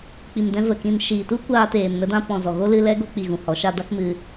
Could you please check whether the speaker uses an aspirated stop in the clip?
no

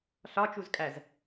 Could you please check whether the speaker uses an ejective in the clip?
yes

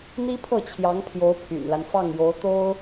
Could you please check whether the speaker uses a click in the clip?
no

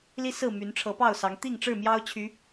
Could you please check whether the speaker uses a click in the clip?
no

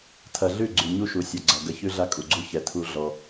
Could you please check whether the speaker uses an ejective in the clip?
yes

